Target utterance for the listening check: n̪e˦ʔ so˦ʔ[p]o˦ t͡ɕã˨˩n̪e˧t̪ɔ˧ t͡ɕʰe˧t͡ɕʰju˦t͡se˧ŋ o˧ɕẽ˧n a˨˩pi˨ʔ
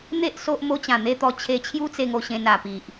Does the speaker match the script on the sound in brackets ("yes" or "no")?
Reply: no